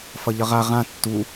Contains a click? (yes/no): no